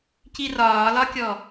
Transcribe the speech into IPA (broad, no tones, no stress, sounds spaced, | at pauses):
c i r ɒː l ɒ kʲ ɔ